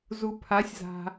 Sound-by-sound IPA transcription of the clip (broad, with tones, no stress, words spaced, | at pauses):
zu˩pʰa˩˧sʲza̤˩